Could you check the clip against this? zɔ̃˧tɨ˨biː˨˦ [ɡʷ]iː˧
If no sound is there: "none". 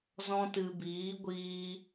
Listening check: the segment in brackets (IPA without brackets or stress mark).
ɡʷ